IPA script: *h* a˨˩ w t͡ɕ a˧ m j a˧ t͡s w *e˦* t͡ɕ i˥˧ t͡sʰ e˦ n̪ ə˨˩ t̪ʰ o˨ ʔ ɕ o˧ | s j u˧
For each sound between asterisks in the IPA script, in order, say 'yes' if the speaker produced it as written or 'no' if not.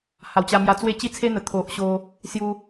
yes, no

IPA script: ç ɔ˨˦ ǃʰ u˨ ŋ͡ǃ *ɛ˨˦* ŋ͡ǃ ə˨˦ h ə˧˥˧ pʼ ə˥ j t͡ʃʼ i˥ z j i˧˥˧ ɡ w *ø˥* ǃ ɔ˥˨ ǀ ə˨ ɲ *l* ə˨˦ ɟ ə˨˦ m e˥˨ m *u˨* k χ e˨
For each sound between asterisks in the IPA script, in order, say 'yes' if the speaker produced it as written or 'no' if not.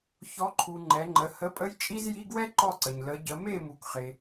yes, no, yes, yes

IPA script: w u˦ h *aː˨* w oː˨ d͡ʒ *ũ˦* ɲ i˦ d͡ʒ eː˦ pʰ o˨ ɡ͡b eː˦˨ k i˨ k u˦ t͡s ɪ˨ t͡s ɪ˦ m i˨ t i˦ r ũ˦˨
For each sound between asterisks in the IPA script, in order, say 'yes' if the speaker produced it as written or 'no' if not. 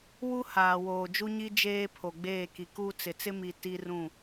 yes, no

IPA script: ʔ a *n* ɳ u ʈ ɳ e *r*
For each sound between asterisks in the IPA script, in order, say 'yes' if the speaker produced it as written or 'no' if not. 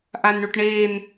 yes, no

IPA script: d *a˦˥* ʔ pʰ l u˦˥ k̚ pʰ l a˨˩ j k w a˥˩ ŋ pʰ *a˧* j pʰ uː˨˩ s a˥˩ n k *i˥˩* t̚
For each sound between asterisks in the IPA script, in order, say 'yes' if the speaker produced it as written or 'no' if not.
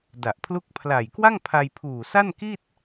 no, yes, yes

